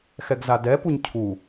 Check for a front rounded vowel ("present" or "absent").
absent